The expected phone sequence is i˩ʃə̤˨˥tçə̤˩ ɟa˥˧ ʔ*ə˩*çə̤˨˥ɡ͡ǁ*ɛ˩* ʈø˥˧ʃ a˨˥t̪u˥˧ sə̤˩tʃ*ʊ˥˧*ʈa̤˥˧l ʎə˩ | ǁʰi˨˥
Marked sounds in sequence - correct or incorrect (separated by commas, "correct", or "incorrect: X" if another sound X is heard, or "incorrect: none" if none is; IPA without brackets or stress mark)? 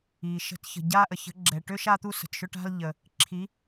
correct, correct, correct